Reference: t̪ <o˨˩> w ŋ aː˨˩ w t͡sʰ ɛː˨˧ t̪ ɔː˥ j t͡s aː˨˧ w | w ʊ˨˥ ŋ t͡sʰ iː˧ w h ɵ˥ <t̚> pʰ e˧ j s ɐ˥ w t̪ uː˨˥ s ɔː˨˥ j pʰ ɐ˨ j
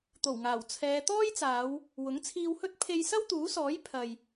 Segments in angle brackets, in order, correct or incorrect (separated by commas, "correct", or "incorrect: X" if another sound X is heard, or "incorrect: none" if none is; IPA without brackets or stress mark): correct, correct